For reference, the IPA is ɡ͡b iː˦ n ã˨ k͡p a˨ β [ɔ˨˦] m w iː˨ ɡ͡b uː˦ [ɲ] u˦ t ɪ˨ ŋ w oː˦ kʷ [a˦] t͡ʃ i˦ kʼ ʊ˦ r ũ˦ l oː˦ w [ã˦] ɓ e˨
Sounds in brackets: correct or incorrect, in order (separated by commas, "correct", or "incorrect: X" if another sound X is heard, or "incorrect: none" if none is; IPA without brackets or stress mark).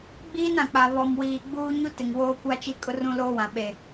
incorrect: ɔ˨, correct, correct, incorrect: ã˨